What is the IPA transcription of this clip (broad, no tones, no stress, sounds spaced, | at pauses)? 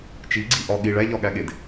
t͡ʃ i ɡ͡ǀ i ʔ ɒ ɠ i ɭ æ ʎ ɒ ɠ æ ɠ e d